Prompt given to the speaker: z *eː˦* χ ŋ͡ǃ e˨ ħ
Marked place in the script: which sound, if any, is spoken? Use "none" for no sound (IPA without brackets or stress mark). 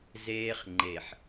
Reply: eː˦